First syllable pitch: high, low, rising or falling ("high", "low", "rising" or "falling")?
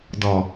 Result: low